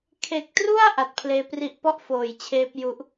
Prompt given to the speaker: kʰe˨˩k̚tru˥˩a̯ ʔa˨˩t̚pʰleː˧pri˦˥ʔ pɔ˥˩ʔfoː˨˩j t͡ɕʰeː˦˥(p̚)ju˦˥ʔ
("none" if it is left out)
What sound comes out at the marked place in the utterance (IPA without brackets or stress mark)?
p̚